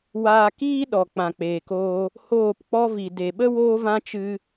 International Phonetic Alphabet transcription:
waː˧ kiː˦ɗɔ˨ k͡pã˨k͡peː˨koː˧ | hoː˦˨pk͡pɔ˦vi˨ de˨ɓə˦ woː˦vã˦t͡ʃɨ˧

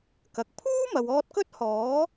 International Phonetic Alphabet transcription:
kɐ˨k̚ pʰuː˥mɐ˨w ɔː˧t̚kɵ˥t̚hɔː˨˥

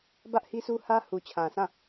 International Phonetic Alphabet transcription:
bä˦ʔhi˦su˦hä˦ hu˨t͡ɕʰã˨sʰã˦˨

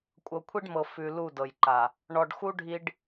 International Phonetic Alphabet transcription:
kʷʼɤ˨kʷʰi˦ɖmɤ˨ fʉ˨ lu˦˨dɤ˨jǃa˨ | ɳɔ˨ɖxu˦ɖʱi˨ɖ

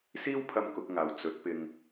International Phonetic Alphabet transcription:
siː˥wpʰɐ˧m kʊ˨˥k̚ŋaː˨w t͡sɵ˨˥t̚pɪ˧ŋ

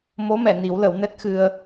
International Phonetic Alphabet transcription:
mo˧˥mɛ˨˩˨ni˨˩˦w lə˨˩˦wnɛ˦˥t̚xɨ˧ə̯

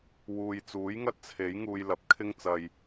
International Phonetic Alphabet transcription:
wuː˨jt͡suː˨˥jŋɐ˥t̚t͡sʰe˨˥j ŋuː˧jlɐ˨˥p̚kʰɪ˥ŋt͡sɐ˧j

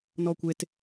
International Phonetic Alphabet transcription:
nɔkʷet

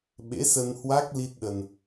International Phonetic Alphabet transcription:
ɓḛ˧˥sə˧nhwa˦˥k̚ li˦˥t̚ɗə˧n

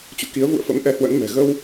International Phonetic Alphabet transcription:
t͡ɕṵ˧˨ki˨˦ə̯vṵ˧˨ə̯ fə̰˧˥mʔɛ˧hwə̰˧˥nmɛ̤˨˩ ɣə˧w

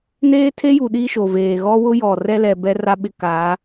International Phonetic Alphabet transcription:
neː˦tʰe˦ju˨ ɗiː˦ʃo˨veː˨ ɣɔ˦ wʊ˦ jɔ˨ rɛ˦lɛ˨ bɛ˦ra˦ɓɪ˦ ka˨˦

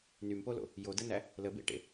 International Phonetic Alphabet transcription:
nympolo̰ | jodənæ | ləbḛʈḛ

